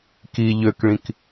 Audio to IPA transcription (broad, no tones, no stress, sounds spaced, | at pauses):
k i ʎ ø k ɭ ĩ k